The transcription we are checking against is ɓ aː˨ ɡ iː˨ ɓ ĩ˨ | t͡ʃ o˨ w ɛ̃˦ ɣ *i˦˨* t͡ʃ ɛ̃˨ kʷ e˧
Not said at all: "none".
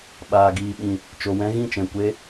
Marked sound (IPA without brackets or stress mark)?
ĩ˦˨